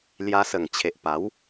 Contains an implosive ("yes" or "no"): no